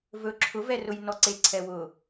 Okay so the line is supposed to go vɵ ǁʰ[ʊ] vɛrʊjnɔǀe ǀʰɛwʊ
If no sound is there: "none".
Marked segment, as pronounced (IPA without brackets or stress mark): ʊ